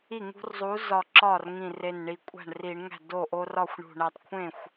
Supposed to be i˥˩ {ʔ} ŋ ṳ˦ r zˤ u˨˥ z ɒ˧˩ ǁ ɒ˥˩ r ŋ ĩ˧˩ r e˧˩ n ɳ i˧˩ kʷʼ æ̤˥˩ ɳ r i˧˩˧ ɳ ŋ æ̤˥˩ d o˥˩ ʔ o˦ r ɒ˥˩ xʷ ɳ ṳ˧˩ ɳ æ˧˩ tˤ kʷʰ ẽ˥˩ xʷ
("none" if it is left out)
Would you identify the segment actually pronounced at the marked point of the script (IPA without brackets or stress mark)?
none